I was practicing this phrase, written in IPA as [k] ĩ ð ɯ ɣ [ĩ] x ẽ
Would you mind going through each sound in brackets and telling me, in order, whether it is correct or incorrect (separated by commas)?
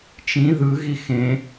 incorrect, incorrect